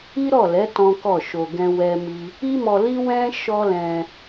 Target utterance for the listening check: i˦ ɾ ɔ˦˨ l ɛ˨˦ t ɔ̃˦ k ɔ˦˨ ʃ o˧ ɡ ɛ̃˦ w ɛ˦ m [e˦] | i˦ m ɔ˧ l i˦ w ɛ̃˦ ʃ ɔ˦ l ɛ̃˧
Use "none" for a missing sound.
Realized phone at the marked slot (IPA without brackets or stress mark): i˦